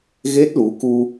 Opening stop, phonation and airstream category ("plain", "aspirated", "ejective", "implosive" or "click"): plain